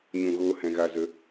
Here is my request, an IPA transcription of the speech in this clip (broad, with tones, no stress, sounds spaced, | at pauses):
ɲ ũ˨ ɣ oː˧ h ɛ̃˨ ɣ a˨ z ə˨˦